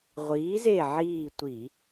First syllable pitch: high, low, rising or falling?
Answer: rising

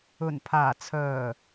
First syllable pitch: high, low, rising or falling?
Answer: low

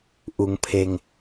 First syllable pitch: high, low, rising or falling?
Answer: low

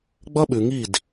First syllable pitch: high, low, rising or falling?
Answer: high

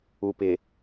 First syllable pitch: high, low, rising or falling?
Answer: low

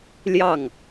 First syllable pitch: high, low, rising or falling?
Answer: falling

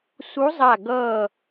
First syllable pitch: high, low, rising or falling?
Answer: rising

